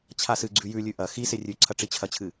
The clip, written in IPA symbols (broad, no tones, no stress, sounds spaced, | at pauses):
t͡ɕʰ a s ɨ ɡ͡ǀ ʉ j ʉ lʲ ʉ ʔ ɐ x i s e rʲ ʉ ǀʰ ɐ ʈ͡ʂ i t͡ɕʰ ɐ t͡ɕʰ ɨ